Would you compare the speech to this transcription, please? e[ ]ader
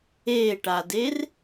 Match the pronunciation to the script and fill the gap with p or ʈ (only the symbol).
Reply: ʈ